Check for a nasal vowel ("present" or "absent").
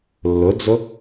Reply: absent